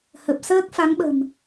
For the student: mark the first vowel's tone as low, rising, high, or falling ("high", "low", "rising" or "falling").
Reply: low